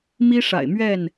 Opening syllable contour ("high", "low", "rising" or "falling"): high